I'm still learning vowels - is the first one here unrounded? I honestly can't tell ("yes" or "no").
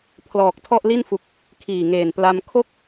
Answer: no